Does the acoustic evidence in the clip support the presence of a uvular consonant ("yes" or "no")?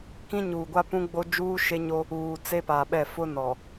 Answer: no